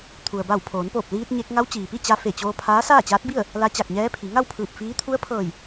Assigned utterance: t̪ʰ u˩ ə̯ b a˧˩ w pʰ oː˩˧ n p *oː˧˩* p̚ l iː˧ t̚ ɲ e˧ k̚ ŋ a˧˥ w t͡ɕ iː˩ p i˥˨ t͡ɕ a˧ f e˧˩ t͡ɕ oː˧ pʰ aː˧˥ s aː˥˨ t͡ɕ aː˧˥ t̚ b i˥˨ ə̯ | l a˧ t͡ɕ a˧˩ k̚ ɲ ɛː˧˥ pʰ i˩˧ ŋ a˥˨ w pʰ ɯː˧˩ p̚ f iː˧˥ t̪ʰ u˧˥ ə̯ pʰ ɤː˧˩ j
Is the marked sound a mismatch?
no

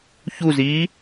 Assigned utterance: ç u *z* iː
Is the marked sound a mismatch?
no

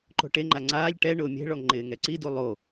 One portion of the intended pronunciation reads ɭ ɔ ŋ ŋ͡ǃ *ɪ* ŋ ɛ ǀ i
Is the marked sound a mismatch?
yes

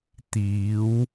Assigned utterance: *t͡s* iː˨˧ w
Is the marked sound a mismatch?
yes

